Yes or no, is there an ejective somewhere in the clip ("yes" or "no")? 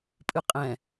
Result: yes